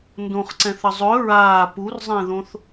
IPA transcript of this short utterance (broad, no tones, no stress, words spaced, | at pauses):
ndõχǀɛ̃θə zˤɵ ɹaː purzˤẽðõθ